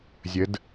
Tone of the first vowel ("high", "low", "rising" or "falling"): rising